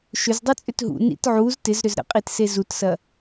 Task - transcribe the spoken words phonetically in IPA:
ʃ ʏ z dˤ i t͡sʼ ʏ t ɦ ṵ n ḭ t ʕ u z t ɪ z ɾ ʏ z ɾ ə̰ qʼ i t s e z u t s ɐ

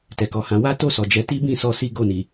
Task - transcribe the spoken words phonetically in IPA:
t ɛ˨ k ɔ˨ h ã˨˦ w a˦ t o˦˨ s ɔ˨ d͡ʒ ɛ˧ t i˦ b ĩ˦˨ s ɔ˧ s i˦ ɡ o˦˨ n i˨

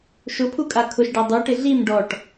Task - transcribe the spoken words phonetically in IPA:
ʃ ʊ pʰ u kʼ a kʰ ʊ ʃ ɖ a dˤ u ʈ ɪ ɮ i m ɖ ɔ ʈ

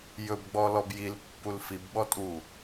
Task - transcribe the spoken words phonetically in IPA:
j ɵ b ɡ͡b ɔ l ɔ b j i l pː u l f i b ɓ ɔ tʼ u

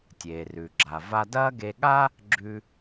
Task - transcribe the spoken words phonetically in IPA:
tʲ eː˩ r ʉ˩ ɡ͡ǁ a˩ v a˧ d ɐː˥ ɡ e˧ ɠ a˥ | ɡ͡ǁ ʉ˧

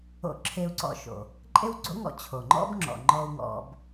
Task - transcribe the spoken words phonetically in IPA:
o̰˧ ǁʰ e˧ u̯ ǀ ɔ̰˧ ʃ o̰˩ | ǃʼ e˥ w ɡ͡ǀ o̰˥ ŋ ɔ̰˧ t͡ɕʰ o˩ ŋ͡ǃ ɔ̰˥ b ŋ͡ǁ ɔ̰˩ ŋ͡ǃ ɔ˧ u̯ ŋ ɔ̰˧ b

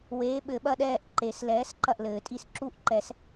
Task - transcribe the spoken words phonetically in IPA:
w eː˨˥ ɓ ɘ˨˩˦ ɓ ɐ˦˨ ɗ ɛː˦˨ ʔ ǃ e˨˩˦ s l ɛː˨˥ s ǃ ɐ˦˨ ʔ l ɘː˨˩˦ tʼ i˦˨ s ǁ u˦˨ ʔ ǃ ɛ˨˩˦ s

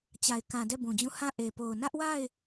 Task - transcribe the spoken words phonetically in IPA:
t͡ɕ a˨ ɪ̯ k ã˨ d ɛ˦˨ b ũ˨ d͡ʑ ũ˦˨ h ã˦˨ ʔ e˨ p o˨ ʊ̯ n ä˦ ʔ w a˦˨ ɪ̯

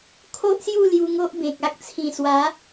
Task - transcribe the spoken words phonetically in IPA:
kʰ o˦ ʔ s j u˥˧ l j u˧ ŋ o˦ ʔ b ẽ˨ k̚ a˦ k̚ t͡sʰ ĩ˨˩ s w a˨˦

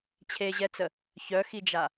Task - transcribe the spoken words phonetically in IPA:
t͡ɕʰ e ʑ ɛ t͡s ə | ç œ x i d͡ʒ a

